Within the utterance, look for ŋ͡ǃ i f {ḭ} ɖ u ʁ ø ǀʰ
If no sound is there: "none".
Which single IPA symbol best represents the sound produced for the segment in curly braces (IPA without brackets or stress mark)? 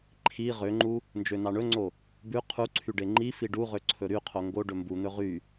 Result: i